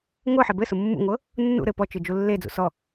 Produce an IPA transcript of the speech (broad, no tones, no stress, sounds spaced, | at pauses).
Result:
ŋʷ ɤ ħ e b ɘ s ʊ mː ṵ ŋʷ ɤ | nː ṵ ɾ ɘ p ɔ t͡ʃ ɯ d͡ʒ u lː e d͡z ṵ s ɔ